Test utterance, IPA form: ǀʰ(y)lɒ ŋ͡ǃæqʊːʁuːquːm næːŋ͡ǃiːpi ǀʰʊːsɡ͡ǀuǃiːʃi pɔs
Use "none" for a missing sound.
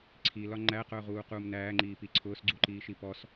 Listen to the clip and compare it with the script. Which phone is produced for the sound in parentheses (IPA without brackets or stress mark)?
i